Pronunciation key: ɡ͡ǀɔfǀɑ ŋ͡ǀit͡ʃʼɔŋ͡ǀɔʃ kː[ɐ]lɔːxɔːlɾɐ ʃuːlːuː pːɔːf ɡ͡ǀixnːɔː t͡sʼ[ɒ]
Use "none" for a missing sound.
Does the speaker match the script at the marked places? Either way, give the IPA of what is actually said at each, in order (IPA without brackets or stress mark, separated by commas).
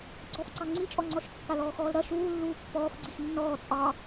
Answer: a, ɑ